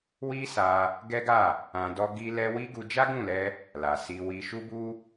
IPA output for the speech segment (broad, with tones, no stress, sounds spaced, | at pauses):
w i˦ s a˧ | ɡ ɛ˦ ɡ a˦˨ | ã˧ d ɔ˦ ɡ i˦ l ɛ˦ w i˦ ɡ u˧ d͡ʒ a˦ ɡ ũ˦˨ l ɛ˧ | l a˨ s i˧ w i˧ ʃ u˦ b u˦